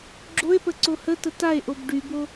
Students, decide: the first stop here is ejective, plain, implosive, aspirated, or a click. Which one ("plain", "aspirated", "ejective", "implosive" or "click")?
click